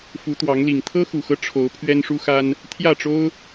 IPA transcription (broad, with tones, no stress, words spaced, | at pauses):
fu˨˦t̪wɑ˨˦ŋli˨˩ŋ t̪ʰɤ˦xu˨˩xɤ˦ ʈ͡ʂʰo˨˦ʊ̯ pʰɥɛ˦nʂu˦xa˦n | t̪ʰjä˥˨ʈ͡ʂo˦ʊ̯